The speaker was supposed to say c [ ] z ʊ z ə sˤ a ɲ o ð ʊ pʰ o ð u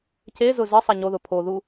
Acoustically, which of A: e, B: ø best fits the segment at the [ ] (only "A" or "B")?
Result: A